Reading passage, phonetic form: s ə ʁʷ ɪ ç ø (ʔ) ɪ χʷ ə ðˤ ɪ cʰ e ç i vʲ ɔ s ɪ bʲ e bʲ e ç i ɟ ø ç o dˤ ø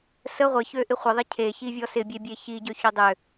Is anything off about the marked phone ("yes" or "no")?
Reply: no